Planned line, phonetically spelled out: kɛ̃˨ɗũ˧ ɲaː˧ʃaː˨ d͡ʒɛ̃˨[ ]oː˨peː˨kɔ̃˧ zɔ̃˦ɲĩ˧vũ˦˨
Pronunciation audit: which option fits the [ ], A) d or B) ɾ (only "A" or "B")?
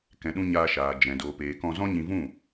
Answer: A